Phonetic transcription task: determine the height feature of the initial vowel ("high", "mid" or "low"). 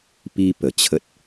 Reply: high